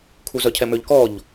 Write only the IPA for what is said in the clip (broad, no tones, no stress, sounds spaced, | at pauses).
kʰ u z œ cʰ ɛ m ø ʎ k ɔ ʎ